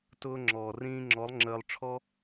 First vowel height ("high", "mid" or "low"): high